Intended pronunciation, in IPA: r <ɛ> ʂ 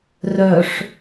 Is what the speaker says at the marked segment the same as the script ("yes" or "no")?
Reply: no